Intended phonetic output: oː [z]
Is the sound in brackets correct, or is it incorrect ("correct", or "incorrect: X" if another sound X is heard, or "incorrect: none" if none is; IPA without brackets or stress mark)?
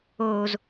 correct